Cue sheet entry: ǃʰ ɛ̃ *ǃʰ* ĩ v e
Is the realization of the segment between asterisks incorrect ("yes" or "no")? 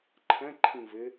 no